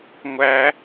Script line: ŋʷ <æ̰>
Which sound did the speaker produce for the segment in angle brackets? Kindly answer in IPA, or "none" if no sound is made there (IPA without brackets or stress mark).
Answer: æ